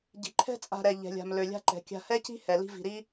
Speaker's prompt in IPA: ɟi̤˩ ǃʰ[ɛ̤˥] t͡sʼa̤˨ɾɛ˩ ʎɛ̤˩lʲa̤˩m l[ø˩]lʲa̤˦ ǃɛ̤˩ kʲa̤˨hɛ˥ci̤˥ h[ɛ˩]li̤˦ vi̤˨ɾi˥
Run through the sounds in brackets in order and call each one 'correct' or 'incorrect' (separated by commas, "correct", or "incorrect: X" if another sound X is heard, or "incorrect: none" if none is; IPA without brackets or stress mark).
correct, correct, correct